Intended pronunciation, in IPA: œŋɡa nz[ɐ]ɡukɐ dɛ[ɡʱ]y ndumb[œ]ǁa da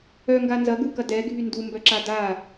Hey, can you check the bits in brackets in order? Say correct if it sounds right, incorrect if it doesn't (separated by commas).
correct, correct, correct